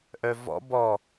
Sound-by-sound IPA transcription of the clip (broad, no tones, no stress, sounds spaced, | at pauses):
ʔ œ v ɔ̰ b ɔ